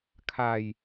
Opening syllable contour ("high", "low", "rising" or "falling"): falling